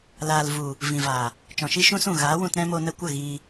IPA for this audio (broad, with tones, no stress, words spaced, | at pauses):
laː˨lvu˨ | vĩ˨vaː˨ | t͡ʃɔ̃˨ʃi˦ʃũ˦sũ˦˨ ɣaː˨˦wũ˧tɾɛ̃˦mo˧ nə˧kʷə˦˨ ɣiː˧